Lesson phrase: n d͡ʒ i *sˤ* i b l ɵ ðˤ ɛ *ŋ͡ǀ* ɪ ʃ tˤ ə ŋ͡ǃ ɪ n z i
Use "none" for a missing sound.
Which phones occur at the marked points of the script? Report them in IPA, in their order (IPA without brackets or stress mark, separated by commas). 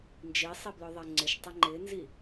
sˤ, ŋ͡ǀ